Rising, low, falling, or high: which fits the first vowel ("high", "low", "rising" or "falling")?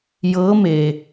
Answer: rising